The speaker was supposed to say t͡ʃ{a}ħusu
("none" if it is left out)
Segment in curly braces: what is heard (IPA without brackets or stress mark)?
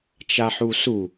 a